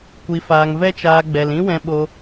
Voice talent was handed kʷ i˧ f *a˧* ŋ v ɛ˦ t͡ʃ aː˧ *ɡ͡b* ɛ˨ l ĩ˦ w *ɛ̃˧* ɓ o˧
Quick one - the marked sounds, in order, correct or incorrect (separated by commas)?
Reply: incorrect, correct, correct